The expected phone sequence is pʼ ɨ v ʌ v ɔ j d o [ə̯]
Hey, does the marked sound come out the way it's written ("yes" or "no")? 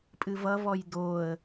yes